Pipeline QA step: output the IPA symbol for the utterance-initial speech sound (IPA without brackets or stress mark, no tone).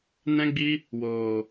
n